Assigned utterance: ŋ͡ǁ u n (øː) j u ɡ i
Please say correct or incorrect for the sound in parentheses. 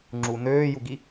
correct